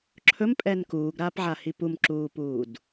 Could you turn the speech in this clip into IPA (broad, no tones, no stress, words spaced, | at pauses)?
ǁʰɵmpʼɛn kuːɡɾaːpʕahi pumǁuːpuːd